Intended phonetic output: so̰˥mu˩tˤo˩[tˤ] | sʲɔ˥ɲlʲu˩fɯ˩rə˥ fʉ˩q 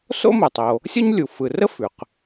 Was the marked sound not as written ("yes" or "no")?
yes